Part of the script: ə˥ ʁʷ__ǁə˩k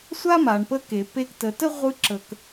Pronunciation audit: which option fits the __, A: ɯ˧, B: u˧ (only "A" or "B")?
A